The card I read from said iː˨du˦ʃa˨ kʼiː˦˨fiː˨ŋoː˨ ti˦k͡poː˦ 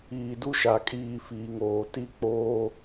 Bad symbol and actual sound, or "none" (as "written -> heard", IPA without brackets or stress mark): none